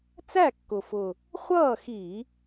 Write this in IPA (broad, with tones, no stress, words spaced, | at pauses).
t͡sæ˥˨kːʊ˨˩ fʊ˨˩ | χʷʌː˥˨xi˧˩˧